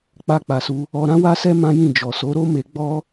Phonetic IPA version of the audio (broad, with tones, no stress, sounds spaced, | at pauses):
k͡p a˧ k͡p a˨ s u˧ | ɔ˧ ɾ ã˦ w a˦ s ɛ˦ m ã˦ j ĩ˦˨ d͡ʒ ɔ˨ s o˨˦ ɾ o˦ m e˧ ɡ͡b ɔ˦